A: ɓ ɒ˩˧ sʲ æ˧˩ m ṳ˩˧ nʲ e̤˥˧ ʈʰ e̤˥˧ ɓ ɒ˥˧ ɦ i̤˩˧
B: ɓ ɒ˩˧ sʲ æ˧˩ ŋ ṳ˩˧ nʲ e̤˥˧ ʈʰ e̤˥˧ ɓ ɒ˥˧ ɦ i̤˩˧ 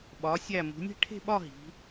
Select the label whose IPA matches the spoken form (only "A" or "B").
A